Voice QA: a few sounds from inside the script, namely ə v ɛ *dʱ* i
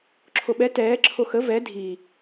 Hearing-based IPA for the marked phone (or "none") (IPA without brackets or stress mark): dʱ